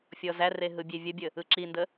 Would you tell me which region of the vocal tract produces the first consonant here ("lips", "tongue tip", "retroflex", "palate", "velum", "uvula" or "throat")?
lips